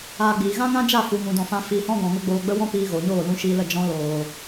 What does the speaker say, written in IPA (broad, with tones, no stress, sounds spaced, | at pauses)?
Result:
aː˧ ɡ͡b iː˨ ɣ ã˦ ŋ ã˦ d͡ʒ a˦˨ f u˨ ŋ ũ˨ d ɔ̃˨ f ã˧ f iː˧ h ɔ̃˦ ɡ ɔ̃˨ ŋ ə˦ ɡ͡b oː˧ ɡ͡b ə˦ w ɔ̃˦ p iː˧ ɣ oː˨ ɲ oː˦˨ l ũ˧ ʃ iː˧ l ə˦˨ d͡ʒ ɔ̃˧ l oː˨